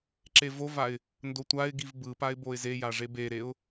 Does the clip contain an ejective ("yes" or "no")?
no